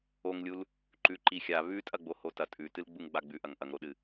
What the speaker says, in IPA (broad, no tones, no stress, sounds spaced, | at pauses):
o ŋ lʲ u l | ǃ ʉ ǃ i xʲ a β ʉ tʼ ɐ ɡ͡b o h o t ɐ tʼ ʉ t ɨ l ɡ͡b u ŋ ɡ͡b a ɡ͡b ʉ ʔ ɐ ŋ ʔ ɐ ŋ ɾ o ɗ ɨ